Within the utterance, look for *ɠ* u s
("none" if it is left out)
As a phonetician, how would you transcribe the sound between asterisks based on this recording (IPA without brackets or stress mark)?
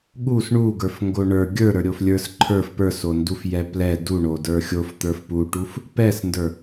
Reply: ɠ